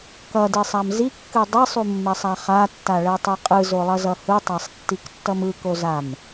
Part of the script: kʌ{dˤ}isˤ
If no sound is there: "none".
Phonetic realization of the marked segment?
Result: d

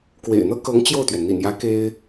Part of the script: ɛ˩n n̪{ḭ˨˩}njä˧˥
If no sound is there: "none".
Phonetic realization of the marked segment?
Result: ḭ˨˩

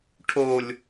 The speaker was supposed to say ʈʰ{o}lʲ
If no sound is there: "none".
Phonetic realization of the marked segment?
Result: o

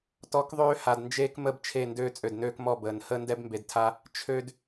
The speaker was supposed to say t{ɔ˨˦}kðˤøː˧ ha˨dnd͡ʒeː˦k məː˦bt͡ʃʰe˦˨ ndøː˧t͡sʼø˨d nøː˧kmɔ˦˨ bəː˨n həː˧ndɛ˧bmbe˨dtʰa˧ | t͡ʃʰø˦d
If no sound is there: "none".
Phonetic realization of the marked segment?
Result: ɔ˨˦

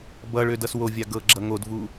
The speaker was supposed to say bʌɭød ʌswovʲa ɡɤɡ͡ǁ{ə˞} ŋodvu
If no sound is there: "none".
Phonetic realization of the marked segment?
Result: ʌ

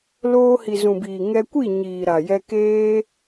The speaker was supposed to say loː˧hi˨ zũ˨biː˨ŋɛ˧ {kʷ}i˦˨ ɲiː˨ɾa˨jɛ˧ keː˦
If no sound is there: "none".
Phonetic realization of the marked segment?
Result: kʷ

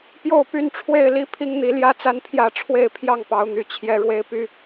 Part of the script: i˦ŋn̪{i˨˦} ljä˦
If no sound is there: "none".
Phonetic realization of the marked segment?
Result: i˨˦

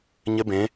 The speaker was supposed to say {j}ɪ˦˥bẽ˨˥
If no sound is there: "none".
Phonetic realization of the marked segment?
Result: ɲ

